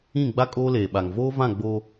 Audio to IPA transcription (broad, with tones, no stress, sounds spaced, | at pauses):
ĩ˦˨ ɡ͡b a˦ kʼ oː˦ l eː˨ ɓ a˨ ŋ v oː˦ v ã˦˨ ɡ͡b o˦